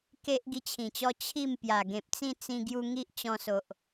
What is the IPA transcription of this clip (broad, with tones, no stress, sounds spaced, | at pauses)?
k e˦ ʔ ɡ i˦ t͡ɕʰ ĩ˨˩ t͡ɕ ɔ˦ t͡ɕʰ i˥˧ m p j a˨˩ ɡ ẽ˨ p̚ t͡s ĩ˥˧ t͡s ĩ˧ ɡ j u˧ ŋ i˦ ʔ t͡ɕ ɔ̃˧ s o˨ ʔ